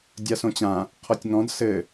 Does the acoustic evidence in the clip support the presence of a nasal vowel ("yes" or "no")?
yes